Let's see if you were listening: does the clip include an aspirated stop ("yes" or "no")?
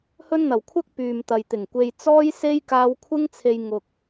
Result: yes